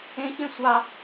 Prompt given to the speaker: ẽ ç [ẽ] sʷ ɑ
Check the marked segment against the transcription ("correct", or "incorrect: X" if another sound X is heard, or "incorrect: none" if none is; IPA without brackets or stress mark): correct